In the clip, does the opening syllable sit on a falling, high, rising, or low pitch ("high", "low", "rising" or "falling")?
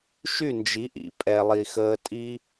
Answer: falling